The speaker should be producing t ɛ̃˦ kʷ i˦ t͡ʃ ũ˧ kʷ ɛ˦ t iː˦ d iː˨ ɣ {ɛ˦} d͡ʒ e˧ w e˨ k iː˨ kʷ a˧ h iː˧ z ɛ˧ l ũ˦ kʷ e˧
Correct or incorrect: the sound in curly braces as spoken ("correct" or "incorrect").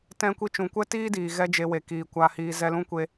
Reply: correct